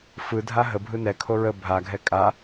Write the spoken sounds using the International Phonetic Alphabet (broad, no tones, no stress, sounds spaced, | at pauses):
f ɯ dʱ a ɦ ə bʱ ɯ n ɛ kʰ o ɹ ə bʱ a ɡʱ ɛ kʼ a